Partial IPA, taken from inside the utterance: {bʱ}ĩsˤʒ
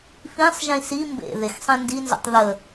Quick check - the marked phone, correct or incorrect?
incorrect